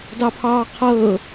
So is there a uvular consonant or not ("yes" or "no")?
yes